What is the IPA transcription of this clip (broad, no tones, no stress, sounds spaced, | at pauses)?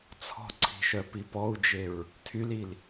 t͡sʰ ɔ̤ ǀʰ i̤ ʃ œ p i p ɔ u̯ d͡ʒ e ɹ | tʰ y l i l